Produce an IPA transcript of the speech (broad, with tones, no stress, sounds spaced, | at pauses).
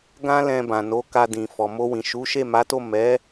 ɡ ã˦ l ɛ̃˧ b ã˨ n o˨˦ k a˧ d ĩ˨ f ɔ˨ m o˧ w ĩ˨ ʃ u˨˦ ʃ e˦˨ m a˨˦ t o˦˨ m ɛ˨˦